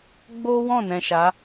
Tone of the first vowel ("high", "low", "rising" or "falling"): high